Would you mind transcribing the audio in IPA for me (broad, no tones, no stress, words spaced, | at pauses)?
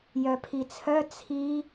jœpʰit͡sʰœ t͡sʰi